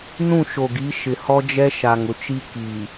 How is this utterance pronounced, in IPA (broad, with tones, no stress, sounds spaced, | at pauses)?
n ũ˦˨ ʃ o˨ ɡ i˨˦ ʃ ɪ˨ h ɔ˦ d͡ʒ ɛ˦ ʃ a˨ ŋ ʊ˨ t͡ʃ i˦ k i˨